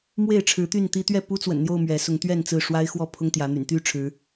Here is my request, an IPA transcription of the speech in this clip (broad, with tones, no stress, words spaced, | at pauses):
mwe˥˨ɪ̯ʈ͡ʂʰɻ̩˨˦t̪y˥˨n t̪i˦ t̪ɥɛ˥˨pu˦t͡swə̰˨˩nn̪jo˥˨ʊ̯ mɥɛ˨˦sʊ˨˦ŋt̪ɥɛ˥˨n t͡sɹ̩˥˨ʂwa˦ɪ̯xwɔ˥˨ pʰʊ˦ŋt̪jä˨˦ n̪y̰˨˩nt̪y˥˨ ʈ͡ʂʰɻ̩˨˦